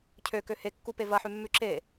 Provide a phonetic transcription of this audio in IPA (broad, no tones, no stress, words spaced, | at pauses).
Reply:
cʰøkø hekːupe vɐħʉmːʉ ǁe